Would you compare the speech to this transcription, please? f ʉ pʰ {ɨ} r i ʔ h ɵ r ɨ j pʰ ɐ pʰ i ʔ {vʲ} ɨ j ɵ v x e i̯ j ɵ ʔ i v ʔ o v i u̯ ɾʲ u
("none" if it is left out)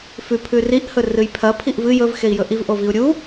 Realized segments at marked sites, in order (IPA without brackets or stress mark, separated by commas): ʉ, v